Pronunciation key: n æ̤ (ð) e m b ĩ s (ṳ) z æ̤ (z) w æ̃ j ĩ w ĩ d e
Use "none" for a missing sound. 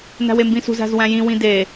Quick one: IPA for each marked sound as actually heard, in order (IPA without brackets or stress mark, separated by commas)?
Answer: w, ṳ, z